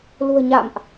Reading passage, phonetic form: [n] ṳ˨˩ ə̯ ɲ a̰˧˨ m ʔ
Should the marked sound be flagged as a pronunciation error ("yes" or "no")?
yes